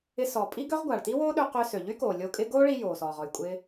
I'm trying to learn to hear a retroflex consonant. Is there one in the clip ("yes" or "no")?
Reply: yes